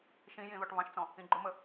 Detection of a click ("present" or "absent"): present